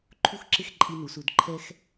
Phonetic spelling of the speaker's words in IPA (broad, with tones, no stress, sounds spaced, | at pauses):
ǃʰ u˥ x ǁ ɪ˥ x ǃʼ i˧ n u˩˧ s u˩˧ d ǃʰ ɛ˥ x